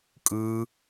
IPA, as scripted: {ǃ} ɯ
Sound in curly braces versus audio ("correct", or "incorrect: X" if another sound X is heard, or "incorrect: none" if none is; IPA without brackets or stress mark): incorrect: kʼ